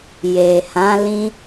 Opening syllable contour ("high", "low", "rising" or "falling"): low